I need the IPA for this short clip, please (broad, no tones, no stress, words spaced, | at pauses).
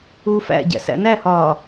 uːfæ̰ɟæ̰ sæ̰næhɒː